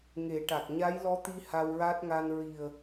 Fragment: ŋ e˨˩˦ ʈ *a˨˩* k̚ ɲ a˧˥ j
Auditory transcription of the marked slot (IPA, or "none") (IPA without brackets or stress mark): a˨˩